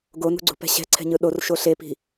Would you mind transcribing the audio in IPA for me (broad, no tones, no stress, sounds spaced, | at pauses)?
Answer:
ɡ o n ṳ ɡ͡ǀ ṳ p ɛ̤ ɕ ɛ̤ ǀʰ ɛ̤ ɲ ɯ ɗ o r ʃ o ɬ e p i̤